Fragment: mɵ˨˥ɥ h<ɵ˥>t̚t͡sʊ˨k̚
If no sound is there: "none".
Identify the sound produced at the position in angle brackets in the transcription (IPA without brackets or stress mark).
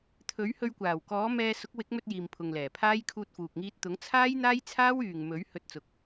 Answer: ɵ˧